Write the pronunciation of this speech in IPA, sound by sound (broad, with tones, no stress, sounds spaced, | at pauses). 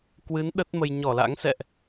k w ɨ˨˦ n ɗ ə˦˥ t̚ m ə˧ j ɲ ɔ˧˩ l a̰˧˥ ŋ s ɛ̰˧˨ ʔ